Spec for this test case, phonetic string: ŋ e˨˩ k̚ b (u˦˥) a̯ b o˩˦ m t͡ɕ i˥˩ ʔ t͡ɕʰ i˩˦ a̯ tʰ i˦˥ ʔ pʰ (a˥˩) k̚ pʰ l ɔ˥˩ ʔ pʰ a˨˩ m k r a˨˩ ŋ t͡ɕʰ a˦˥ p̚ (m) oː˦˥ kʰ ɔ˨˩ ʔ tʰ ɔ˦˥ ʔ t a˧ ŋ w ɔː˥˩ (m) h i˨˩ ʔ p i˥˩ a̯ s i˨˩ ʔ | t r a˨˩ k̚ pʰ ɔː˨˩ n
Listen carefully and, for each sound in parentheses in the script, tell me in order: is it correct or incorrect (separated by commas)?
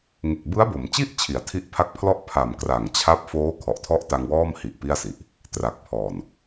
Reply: incorrect, incorrect, incorrect, correct